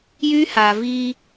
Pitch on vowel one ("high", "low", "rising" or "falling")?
high